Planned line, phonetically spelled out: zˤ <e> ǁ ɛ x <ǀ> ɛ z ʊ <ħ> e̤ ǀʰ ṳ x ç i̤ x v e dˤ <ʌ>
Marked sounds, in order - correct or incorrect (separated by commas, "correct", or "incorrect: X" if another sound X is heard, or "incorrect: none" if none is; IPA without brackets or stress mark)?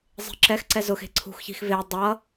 incorrect: e̤, correct, incorrect: x, correct